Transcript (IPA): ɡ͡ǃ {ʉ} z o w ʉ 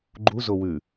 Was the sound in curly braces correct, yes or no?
no